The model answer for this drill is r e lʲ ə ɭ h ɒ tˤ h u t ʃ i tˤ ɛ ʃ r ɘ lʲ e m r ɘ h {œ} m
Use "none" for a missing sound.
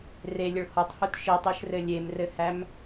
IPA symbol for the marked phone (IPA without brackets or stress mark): æ